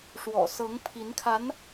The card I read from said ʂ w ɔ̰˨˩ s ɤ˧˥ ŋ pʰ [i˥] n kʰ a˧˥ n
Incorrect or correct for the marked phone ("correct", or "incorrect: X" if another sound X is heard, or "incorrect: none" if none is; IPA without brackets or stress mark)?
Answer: incorrect: i˧˥